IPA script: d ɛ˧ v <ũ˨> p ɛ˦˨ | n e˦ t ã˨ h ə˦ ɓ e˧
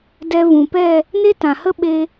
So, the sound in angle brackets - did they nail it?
yes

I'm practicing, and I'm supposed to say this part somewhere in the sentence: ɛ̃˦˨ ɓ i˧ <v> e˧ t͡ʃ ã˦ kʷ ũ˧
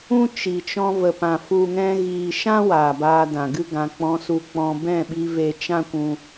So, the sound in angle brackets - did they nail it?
yes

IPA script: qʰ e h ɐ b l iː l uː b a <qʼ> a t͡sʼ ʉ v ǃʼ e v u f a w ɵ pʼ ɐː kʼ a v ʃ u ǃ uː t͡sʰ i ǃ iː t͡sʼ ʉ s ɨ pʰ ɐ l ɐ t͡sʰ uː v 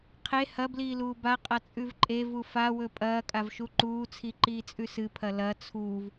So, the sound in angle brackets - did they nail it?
yes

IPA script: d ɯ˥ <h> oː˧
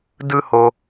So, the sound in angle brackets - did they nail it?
yes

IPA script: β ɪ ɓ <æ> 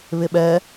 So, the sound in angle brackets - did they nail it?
no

